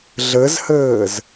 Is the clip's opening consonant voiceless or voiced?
voiced